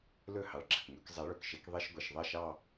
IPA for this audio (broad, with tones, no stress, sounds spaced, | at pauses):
l ɵ˥˩ h ɑ˨˦ ɭ ɡ͡ǁ ɐ˨ k ŋ ɵ˨˦ k zˤ ɛ˨˦ ɭ ɵ˨ k ʃ e˨˦ k ðˤ e˧˥˧ ʃ ɡʷ e˨ ʃ ðˤ ɐ˥˩ ʃ ɑ˥˧